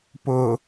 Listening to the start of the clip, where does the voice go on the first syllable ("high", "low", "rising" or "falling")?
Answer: low